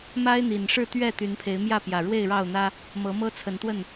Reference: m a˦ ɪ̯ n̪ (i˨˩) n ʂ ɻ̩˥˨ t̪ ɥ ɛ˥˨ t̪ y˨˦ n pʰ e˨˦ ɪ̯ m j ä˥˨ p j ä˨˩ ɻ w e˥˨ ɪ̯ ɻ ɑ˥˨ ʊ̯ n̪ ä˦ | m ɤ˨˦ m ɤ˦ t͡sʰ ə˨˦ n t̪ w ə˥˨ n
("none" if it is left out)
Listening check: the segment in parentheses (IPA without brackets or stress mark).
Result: i˨˩